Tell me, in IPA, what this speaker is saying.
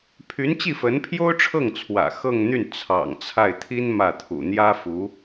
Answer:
pʰy˧˥n t͡ɕi˥˩fə˧˥npʰjo˥ʊ̯ʈ͡ʂʰɤ˥˩ŋ t͡sʰwä̰˨˩xɤ˥˧ŋn̪y˥˩n t͡sʰɑ̰˨˩ŋt͡sʰa˥˩ɪ̯ t̪ʰi˥n mä˥˩t̪ʰṵ˨˩ n̪jä˥fu˧˥

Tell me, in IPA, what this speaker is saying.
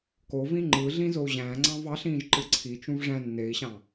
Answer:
kovĩ ŋ͡ǃɯɮĩ zou̯ʑæ̃ːŋ͡ǀɑ̃v ɑɬĩːʒ ǃɯǀʰit͡ʃũv ʐæ̃ nːei̯ɕɑ̃

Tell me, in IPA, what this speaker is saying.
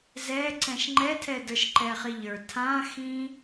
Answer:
zɛǀɛ̃ʃ ŋ͡ǃɛtʰɛdə˞ʃ ǃɛχiʎə˞ tʰãxĩ

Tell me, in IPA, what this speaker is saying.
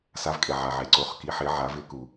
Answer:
sa˩˧vkʼe˩ ʕa˩ʕe˩ǀo˩˧χ ki˩˧ħɪ˩˧ ʕa˩˧vɪ˩˧ku˩

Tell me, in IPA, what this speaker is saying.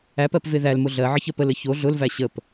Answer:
æp ɜpveðælmʊ ɮɜ ʕəçɜpələ ço ɮʊlvæ ɕəp

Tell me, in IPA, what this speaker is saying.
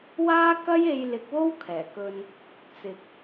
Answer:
waː˥kɐ˥j e˧jlɪ˨˥k̚wo˥w kʰɛː˨˩kɵ˧n | t͡sɪ˨k̚

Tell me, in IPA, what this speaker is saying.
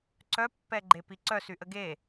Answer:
ǀœpːɛɡ͡ǃepi ǀœsyʔə ɡe

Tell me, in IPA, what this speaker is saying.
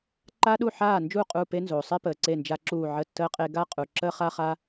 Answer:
ǃaː˦ɗu˦˨ ħaː˦˨nd͡ʒuː˦˨ qʼu˦˨pe˦nzoː˩ sˤe˦pəː˩ ǀe˦˨nd͡ʒa˦ǁuː˦˨ ʕə˦˨tːəː˦qʼe˦ ɡa˦ qʼu˩ǁəː˦χa˦χa˦

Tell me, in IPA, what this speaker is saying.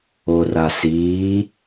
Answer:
orasiː

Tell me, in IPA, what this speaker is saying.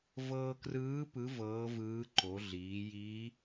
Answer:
vɤː˧krɯː˧˥ pɯ˧˥ vɤː˧˥vɯː˧˥ ǃo˩˧ɮiː˩˧jiː˧˥

